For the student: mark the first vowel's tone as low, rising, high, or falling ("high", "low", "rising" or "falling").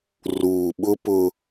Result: low